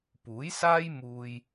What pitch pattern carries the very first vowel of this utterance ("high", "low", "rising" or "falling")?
rising